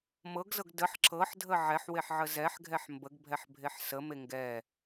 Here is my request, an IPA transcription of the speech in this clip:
m ɤ ɡ z ɤ ɡ d ə ħ ǁ ɤ ħ dʱ ə ʕ ɛ ħ w e ħ ʕ ə z ɛ ħ ɡʱ ɛ ħ m b ə ɡ bʱ ɛ ħ bʱ e ħ s ə m e ŋ ɡ ɛ

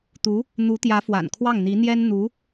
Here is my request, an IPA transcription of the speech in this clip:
t̪ u˧˥ | n̪ u˧˥ t̪ j ä˧˥ f w a̰˨˩ n kʰ w ɑ˥˩ ŋ n̪ i˧˥ n̪ j ɛ˥ n n̪ u˧˥

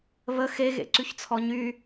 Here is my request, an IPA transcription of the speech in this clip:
β ə x e ɣ ḛ ǀ y ç t͡sʰ ɔ ɲ y

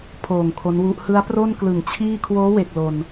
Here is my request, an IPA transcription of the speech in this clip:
pʰ oː˨˩ ŋ kʰ o˦˥ n w u˦˥ ʔ h ɯ˦˥ a̯ p r o˥˩ n k l ɯ˨˩ ŋ t͡ɕʰ iː˥˩ kʰ w oː˦˥ w e˨˩ k̚ l o˧ n

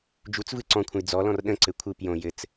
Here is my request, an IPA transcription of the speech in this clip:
d͡ʒ u t͡s v ɯ ǀ ɔ̃ kʷʰ ə̃ j d͡z ɔ l ɔ̃ r ɗ ə̃ ǀ ɘ kʷʰ ɯ p j õ j ɘ t͡s

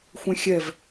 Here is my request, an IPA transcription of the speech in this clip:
xʷ ẽ xʲ ɛ v

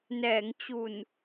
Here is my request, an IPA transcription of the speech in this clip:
n ɛː˩˦ ŋ t͡ɕ u˨˩ n

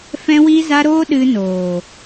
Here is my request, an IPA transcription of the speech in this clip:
f ɛ̃˦ w i˦ z a˦ ɾ o˦ ɗ ɨ˧ n oː˨

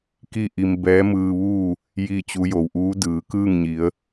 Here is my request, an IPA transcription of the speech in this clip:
k i˥˨ ʔ i˧ m b ɛː˧˥ m ɯː˧ ʋ uː˥˨ | j i˥˨ t͡ɕ u˧˥ j o˩ w ʔ uː˧˥ d ɯː˩˧ k ɯː˥˨ ŋ ɲ i˩˧ ə̯

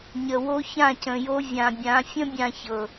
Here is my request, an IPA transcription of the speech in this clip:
ɲ ə˨ w o˦ ç ã˦˨ c ə̃˨ j o˦ vʲ ã˨ bʲ ã˨˦ fʲ ə̃˦ bʲ ã˦ ç ɤ˨

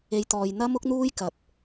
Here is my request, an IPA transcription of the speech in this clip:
e˨˧ j t̪ ɔː˨ j n̪ ɐ˥ m ʊ˥ k̚ n̪ uː˥ j k ɐ˨ p̚

